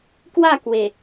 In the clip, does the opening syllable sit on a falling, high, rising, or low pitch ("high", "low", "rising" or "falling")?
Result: falling